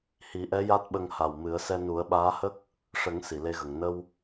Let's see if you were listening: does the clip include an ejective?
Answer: no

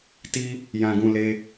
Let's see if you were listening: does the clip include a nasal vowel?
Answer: yes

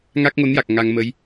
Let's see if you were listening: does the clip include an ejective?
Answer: no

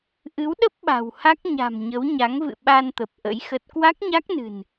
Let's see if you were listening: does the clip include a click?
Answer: no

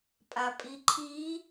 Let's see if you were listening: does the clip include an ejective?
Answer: yes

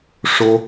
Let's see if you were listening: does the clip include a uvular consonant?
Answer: no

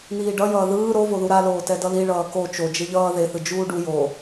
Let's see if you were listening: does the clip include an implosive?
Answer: no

